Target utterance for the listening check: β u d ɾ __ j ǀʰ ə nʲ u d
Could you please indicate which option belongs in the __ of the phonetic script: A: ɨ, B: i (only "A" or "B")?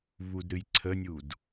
A